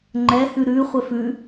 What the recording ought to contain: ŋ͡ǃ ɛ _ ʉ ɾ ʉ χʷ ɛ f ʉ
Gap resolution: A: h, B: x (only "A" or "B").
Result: A